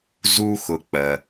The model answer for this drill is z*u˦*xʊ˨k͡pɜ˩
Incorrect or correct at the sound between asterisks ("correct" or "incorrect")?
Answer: correct